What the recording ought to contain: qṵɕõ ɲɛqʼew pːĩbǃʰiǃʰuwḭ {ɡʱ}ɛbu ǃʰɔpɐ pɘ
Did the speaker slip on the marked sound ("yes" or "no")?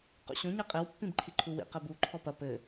yes